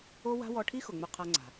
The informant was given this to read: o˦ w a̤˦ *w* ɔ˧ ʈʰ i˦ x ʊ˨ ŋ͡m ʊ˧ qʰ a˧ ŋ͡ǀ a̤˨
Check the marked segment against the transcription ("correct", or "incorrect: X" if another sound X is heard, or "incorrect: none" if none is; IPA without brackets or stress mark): correct